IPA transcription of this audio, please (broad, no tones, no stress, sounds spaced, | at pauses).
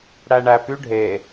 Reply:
ɽ æ ɳ æ p y ɖʱ e